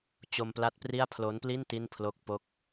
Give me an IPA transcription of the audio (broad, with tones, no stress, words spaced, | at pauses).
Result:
t͡ɕo˧mpla˦˥t̚pri˥˩a̯ pʰlo˦˥n pli˥˩n ti˥˩npʰlo˥˩k̚ po˦˥k̚